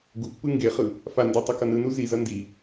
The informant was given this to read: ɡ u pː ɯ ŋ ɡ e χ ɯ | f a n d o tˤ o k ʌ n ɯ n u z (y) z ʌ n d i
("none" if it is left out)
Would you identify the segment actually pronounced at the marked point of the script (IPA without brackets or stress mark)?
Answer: i